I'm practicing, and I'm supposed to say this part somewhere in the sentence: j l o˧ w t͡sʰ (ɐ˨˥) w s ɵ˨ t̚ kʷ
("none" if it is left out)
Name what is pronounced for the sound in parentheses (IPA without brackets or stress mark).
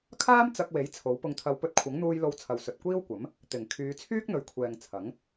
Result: ɐ˨